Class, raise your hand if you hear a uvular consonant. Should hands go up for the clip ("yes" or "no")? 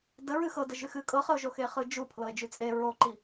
yes